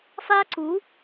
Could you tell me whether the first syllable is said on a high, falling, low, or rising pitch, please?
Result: high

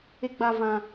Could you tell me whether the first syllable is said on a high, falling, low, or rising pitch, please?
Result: high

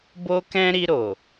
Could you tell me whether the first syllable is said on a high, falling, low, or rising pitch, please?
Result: high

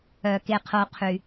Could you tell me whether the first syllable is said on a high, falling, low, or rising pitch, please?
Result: low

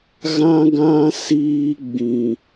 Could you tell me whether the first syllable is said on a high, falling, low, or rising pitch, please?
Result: high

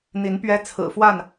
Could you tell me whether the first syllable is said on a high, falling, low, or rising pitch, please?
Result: rising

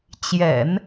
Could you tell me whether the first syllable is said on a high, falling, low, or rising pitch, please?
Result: low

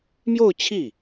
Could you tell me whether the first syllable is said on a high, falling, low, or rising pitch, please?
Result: falling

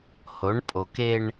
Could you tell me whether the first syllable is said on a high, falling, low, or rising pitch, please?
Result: rising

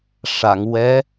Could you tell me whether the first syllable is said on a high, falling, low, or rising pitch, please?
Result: low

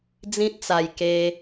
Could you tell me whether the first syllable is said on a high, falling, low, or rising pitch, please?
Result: high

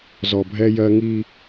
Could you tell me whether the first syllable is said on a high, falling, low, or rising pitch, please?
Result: low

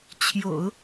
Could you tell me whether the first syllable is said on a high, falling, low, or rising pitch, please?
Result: low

